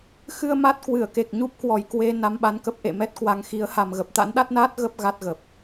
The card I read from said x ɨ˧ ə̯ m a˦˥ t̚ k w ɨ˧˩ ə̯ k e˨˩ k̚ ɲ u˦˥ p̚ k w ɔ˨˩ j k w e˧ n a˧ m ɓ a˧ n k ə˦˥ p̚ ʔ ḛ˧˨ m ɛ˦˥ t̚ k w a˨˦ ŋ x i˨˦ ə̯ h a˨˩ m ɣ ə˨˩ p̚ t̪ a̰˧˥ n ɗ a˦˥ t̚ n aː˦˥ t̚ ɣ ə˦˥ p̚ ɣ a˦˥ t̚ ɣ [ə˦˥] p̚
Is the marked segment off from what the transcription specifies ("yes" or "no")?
yes